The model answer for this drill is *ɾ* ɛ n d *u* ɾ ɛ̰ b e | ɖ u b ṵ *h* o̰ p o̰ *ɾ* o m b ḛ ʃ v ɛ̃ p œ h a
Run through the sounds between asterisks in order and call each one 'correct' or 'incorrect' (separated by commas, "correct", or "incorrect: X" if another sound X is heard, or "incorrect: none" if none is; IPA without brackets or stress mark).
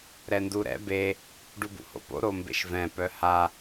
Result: correct, correct, correct, correct